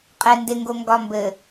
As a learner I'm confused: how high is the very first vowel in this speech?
mid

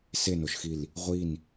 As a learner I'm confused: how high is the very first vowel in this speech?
mid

